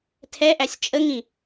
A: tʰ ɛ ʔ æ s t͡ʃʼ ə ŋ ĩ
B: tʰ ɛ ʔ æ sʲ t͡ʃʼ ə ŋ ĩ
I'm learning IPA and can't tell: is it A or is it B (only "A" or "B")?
B